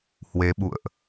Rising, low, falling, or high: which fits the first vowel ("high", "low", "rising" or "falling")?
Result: rising